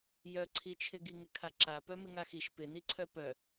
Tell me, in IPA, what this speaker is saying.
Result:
j œ ǀʰ i t͡ʃʰ ɪ ɡ i ŋ ɪ kʰ a ǁ a p œ m ɪ ŋ a x i ʃ p ɪ n i ǀʰ œ p œ

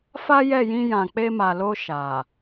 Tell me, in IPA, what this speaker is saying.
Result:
f a˦ j ɛ˦˨ j ĩ˧ j ã˨ k͡p e˧ m a˨ l o˧ ʃ a˨

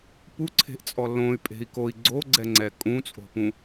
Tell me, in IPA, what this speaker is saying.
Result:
p u ǀʰ e̤ ʔ t͡sʼ ɔ l õ y̯ pʼ e̤ i̯ k o i̯ ɡ͡ǀ o ɡ͡ǀ ɛ ŋ͡ǀ ɛ kʼ ũ t͡sʼ o̤ p ũ

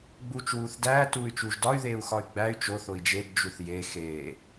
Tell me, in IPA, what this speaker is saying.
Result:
ɡ͡b uː t͡ʃ w uː θ d æː t uː y̯ t͡ʃ uː ʒ d ɒ y̯ ð eː u̯ x ɒ y̯ ɡ͡b æ y̯ t͡ʃ o θ o i̯ d͡ʒ e d d͡ʒ u θ j e x eː

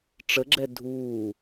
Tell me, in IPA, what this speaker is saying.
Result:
ʈ͡ʂ ə ɡ͡ǁ ɛ dʱ uː

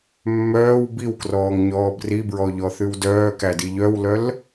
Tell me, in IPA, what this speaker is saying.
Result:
mː œː w b i w k r ɔː ŋ ɲ ɔː b r i b ɹ ɔ ʎ ɔ θ ʉ w d œː k æ d i ʎ œ w l œ l

